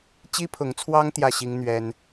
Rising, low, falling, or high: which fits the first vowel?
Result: high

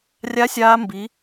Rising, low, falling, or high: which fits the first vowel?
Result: rising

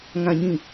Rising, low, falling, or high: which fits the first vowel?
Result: low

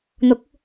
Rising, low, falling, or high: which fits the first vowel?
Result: rising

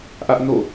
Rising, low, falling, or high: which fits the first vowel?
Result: high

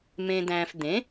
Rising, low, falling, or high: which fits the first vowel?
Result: low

